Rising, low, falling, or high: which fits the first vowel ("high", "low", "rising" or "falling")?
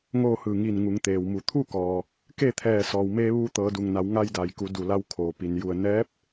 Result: falling